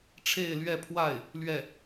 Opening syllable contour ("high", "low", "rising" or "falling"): falling